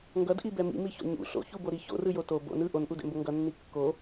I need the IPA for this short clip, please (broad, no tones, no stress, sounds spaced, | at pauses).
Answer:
ŋ ɡ ʌ d ʔ i b ɛ m ḭ m i ç o̰ ɲ ṵ ɬ o̰ ç u b o ɾ i ç o̰ r ɯ j o t o b o̰ n ɯ ʔ o n ʔ u d ɛ̰ m b o ŋ ɡ ʌ nː i kː o